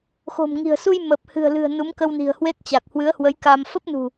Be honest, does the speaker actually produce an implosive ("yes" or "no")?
no